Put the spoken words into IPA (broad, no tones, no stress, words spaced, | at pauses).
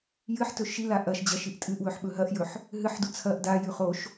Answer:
jɨħtɵ ʃila ʔɐʃ d͡ʑɐʃiʔtʼɨʔwɵħ ɓɵɦɐʔjɵħ | ɦɨħdu t͡sʰɐʔ dajʉ χoʃ